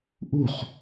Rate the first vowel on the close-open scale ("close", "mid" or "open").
close